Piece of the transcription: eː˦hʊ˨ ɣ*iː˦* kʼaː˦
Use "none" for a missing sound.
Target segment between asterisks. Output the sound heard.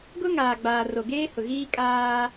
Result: iː˦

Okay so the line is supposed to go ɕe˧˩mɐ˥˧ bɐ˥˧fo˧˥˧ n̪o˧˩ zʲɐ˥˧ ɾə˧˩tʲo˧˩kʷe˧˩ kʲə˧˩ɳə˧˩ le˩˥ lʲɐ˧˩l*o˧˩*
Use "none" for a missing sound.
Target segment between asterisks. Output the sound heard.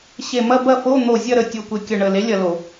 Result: o˧˩˧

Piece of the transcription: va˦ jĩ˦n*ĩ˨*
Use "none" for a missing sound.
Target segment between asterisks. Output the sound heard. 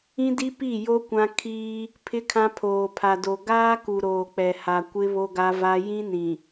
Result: ĩ˨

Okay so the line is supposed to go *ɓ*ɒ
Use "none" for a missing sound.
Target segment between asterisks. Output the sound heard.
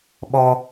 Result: ɓ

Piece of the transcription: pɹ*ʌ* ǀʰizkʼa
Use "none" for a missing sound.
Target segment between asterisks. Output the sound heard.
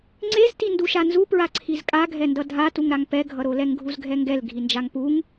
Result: a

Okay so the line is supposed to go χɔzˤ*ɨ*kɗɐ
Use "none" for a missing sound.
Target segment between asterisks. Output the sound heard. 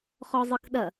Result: ɨ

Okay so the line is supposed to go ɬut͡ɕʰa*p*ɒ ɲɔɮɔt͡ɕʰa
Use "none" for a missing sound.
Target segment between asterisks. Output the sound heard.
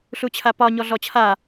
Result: p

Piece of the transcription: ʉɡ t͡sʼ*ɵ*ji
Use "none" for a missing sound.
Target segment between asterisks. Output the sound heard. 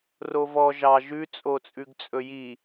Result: ɵ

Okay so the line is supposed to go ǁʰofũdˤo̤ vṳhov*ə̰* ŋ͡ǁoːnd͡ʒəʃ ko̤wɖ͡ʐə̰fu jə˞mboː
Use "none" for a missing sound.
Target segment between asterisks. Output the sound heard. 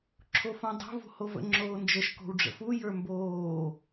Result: ə̰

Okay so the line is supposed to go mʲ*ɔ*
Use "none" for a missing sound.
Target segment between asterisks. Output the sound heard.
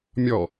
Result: ɔ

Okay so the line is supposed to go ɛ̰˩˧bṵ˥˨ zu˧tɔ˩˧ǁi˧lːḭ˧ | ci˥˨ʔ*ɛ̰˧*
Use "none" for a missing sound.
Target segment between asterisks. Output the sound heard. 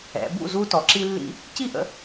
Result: ə̰˧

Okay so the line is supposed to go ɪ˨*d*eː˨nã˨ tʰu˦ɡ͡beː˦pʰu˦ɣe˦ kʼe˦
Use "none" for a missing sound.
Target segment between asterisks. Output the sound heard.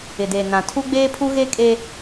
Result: d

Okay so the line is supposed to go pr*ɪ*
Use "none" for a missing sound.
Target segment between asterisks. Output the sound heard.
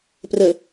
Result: ə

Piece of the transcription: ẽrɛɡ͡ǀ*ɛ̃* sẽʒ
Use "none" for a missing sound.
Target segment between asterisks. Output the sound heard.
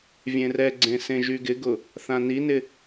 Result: ẽ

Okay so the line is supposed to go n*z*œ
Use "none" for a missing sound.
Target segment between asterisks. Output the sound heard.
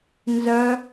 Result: z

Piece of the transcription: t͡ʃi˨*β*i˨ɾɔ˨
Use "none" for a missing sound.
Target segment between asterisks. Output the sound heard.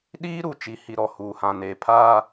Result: h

